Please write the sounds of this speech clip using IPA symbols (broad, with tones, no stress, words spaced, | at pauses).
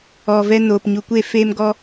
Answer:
ɔ˨ vɛ˧noː˨p ɲu˨kʷe˦˨feː˦mɡɔ˦